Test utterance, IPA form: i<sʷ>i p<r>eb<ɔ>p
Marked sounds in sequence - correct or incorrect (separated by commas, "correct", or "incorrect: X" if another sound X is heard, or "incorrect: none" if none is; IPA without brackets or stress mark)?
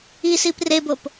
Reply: incorrect: s, correct, incorrect: o